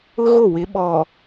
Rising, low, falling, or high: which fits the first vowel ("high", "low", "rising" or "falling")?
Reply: high